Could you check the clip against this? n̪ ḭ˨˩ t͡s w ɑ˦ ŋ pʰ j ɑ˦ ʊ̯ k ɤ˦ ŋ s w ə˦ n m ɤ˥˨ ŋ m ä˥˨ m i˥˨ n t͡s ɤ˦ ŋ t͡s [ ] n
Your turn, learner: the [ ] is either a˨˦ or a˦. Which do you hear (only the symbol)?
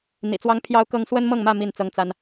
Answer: a˦